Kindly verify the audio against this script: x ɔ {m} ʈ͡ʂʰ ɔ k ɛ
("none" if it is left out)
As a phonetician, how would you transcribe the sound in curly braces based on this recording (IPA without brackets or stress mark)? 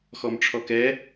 m